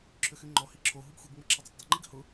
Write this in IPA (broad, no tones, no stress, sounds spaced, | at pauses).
ǁʰ ʏ x y ŋ͡ǃ ɔ h i ǁʰ o ɦ u ɡ xʷ i ɡ ŋ͡m ə ǁʰ ɪ dˤ ø tˤ dˤ ɪ ŋ͡ǃ i ɡ h ʊ